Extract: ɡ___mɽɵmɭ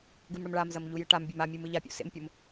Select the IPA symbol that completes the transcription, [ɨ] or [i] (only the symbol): ɨ